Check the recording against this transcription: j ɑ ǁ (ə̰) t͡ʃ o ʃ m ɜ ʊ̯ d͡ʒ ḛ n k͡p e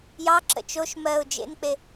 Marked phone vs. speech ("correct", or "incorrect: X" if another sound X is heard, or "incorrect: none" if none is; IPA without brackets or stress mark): correct